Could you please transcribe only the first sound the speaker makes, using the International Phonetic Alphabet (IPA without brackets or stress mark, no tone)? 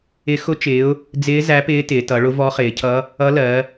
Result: ɪ